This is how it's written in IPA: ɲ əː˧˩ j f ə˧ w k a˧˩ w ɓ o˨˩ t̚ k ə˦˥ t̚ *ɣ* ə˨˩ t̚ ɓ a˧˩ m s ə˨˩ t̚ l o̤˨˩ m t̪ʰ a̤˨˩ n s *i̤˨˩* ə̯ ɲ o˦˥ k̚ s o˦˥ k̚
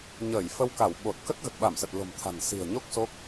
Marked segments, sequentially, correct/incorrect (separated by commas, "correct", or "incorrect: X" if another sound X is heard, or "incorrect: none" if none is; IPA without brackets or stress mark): correct, correct